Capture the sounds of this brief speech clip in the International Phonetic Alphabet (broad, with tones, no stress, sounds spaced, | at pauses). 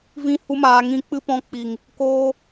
v ĩ˦ h u˦ m aː˧ ŋ ĩ˧ k͡p ɨ˦ p ɔ̃˧ k͡p i˨ ŋ | k oː˧